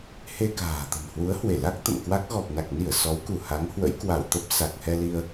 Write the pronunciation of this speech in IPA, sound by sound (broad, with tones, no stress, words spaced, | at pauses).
he˧ka̤ː˨˩ t̪ə̤˨˩n hwu˨˦ə̯hwe˧˩la˦˥k̚ t̪ə̰˧˨mkwa˦˥k̚ ɣɔ˨˩p̚na˨˩k̚ni˧˩ə̯ sɔ˨˦wku˧˩ ha˨˦ŋhwə̰˧˥jkwa˧˩wt̪ə˦˥p̚ sa˨˩k̚hɛ˧li˧ə̯